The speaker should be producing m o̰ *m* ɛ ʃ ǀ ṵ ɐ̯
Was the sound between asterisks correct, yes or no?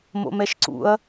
yes